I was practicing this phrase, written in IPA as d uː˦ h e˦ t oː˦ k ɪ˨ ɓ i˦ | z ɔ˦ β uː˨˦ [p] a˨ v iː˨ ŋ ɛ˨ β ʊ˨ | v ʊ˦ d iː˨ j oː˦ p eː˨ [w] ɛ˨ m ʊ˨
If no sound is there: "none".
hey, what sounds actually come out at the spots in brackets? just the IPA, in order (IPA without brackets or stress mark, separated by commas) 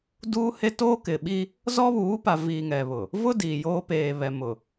p, β